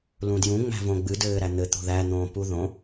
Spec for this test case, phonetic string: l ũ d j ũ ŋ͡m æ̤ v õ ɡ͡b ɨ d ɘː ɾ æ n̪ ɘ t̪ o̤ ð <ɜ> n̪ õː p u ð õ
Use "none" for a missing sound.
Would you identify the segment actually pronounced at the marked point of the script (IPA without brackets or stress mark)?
æ